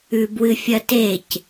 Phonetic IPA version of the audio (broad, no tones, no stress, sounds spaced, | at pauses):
ʉ b w ɨ fʲ ɐ t e c